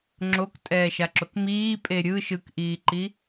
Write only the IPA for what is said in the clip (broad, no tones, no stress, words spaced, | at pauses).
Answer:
ŋ͡ǁoktʼɛːʃaǁok miːpʼe ɾʲɯ ʃɯkʔiːǃi